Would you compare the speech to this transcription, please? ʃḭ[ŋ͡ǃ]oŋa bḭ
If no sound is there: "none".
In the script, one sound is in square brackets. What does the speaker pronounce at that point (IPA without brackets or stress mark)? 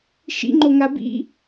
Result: ŋ͡ǃ